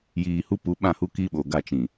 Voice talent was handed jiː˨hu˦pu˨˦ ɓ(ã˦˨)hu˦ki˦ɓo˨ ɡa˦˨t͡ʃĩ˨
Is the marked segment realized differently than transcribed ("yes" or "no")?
no